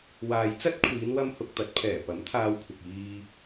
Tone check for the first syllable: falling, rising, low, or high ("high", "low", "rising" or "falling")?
low